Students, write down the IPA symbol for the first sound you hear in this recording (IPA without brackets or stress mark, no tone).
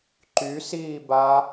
ǃ